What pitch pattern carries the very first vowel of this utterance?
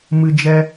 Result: high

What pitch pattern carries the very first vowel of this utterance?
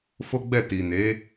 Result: high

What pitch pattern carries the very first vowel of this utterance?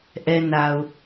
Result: high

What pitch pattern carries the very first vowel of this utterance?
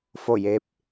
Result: falling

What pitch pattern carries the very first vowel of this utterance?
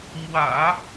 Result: low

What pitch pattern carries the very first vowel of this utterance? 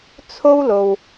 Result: high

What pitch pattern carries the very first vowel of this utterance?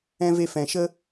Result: high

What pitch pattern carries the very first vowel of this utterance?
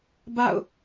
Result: falling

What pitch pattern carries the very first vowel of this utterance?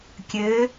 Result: rising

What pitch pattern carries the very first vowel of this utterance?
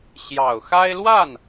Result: low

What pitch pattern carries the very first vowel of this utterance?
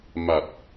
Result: low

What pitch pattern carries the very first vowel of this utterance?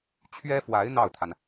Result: high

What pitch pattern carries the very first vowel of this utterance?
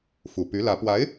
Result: low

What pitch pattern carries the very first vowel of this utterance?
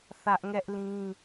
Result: high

